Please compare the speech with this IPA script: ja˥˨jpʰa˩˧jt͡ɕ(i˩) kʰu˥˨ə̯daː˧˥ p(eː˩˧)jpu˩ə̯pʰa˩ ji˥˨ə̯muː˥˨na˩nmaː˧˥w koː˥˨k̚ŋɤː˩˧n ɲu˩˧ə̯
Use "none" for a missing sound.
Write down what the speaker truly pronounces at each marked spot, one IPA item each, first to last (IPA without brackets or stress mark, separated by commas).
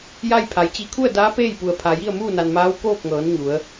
i˧, eː˥˨